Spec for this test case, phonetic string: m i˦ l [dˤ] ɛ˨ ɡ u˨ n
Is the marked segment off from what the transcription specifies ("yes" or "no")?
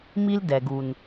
yes